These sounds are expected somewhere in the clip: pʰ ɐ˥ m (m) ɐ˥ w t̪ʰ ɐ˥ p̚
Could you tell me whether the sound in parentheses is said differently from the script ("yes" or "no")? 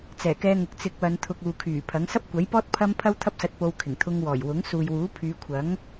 yes